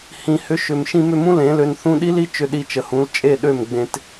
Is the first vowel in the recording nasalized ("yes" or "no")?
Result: yes